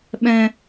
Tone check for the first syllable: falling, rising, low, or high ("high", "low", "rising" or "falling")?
high